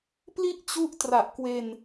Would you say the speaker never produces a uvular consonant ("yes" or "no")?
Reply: yes